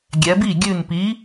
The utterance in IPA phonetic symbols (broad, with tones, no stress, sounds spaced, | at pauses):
ɡʲ ɛ˩˧ b i˥˩ ɡʲ ʉ˧˩ n p i˨˥